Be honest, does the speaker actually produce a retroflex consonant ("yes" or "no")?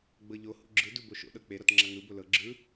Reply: no